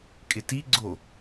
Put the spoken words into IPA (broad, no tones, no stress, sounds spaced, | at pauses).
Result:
kʼ ɪ t i ɡ͡ǀ o